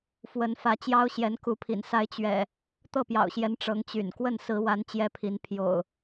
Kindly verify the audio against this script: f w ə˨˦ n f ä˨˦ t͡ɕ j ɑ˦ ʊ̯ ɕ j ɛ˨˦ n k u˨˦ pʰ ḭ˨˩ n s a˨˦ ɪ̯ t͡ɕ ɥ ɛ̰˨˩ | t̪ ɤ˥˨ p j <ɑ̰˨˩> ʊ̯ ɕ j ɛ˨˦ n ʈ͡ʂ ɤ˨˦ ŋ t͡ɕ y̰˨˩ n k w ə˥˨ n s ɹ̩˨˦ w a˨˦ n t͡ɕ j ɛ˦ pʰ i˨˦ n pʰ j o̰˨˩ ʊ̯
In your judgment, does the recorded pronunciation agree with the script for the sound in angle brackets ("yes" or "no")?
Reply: yes